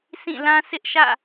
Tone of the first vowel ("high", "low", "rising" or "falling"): falling